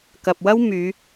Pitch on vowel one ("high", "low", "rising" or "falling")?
low